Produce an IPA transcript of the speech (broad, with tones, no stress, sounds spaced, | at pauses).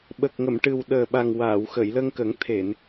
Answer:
ɓ ə˨˩ k̚ ŋ ə˨˩˨ m ʈ ɨ˨˩ w ɗ əː˨˩ ɓ a˨˩ ŋ w aː˨˩˨ w x ə˨˩˨ j l ə˧ ŋ k ə˨˩˦ ŋ t̪ʰ e˨˩˨ n